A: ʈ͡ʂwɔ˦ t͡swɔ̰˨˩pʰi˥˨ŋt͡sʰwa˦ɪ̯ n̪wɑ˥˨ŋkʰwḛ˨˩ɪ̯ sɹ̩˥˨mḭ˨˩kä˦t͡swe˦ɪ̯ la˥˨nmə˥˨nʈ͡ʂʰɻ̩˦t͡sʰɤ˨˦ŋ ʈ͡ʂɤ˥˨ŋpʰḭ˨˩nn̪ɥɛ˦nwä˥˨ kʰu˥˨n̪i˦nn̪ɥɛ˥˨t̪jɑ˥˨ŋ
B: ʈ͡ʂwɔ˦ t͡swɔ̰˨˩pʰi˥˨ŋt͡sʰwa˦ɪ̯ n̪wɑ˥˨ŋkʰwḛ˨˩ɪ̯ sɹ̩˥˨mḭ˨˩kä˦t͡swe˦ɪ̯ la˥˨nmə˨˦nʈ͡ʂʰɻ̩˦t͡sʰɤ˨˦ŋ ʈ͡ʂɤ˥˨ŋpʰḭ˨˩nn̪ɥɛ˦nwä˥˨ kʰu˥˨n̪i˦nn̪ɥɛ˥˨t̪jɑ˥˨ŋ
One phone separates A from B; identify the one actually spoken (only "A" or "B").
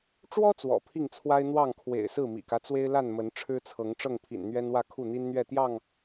B